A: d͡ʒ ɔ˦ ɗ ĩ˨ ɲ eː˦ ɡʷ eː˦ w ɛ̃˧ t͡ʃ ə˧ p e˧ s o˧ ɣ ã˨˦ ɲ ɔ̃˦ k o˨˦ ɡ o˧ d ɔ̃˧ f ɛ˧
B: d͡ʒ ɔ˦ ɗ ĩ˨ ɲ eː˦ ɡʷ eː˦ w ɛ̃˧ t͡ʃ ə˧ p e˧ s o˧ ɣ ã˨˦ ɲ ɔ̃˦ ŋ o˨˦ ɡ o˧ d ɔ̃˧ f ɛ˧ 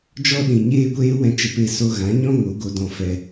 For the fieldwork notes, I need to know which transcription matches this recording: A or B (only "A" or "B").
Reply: B